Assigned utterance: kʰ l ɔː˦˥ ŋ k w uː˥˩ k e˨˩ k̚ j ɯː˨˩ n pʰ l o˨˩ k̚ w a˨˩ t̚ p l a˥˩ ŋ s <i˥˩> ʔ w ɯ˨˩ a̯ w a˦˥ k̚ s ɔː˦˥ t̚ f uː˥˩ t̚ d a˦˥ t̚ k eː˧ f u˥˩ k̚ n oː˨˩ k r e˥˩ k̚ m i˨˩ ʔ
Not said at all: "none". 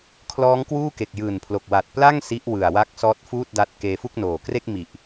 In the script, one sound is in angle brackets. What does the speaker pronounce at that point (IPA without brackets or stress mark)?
i˦˥